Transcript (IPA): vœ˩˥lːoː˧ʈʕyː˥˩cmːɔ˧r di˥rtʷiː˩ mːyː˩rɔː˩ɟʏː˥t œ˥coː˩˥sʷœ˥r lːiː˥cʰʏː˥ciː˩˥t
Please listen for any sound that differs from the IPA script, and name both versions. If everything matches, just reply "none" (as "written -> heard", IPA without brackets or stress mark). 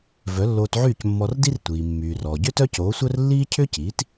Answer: ʈ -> t